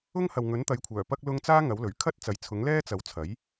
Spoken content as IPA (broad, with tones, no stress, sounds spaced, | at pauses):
ʊ˥ ŋ h ɐ˨ w ŋ ɵ˨˥ n t̪ ɐ˨˥ j kʷʰ œː˨˩ p ɐ˥ k̚ l ʊ˥ ŋ t͡s aː˥ ŋ ɐ˨˥ w l ɵ˨˩ ɥ kʰ ɐ˥ t̚ t͡s ɐ˨˥ j t͡sʰ ʊ˨˥ ŋ l ɛː˥ t͡s ɐ˨ w t͡sʰ ɐ˨˥ j